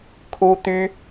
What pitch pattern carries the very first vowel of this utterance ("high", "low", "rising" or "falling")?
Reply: high